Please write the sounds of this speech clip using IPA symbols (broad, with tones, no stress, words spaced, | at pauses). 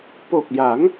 po˨˩k̚ja˩˦ŋ